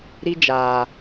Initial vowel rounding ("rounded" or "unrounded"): unrounded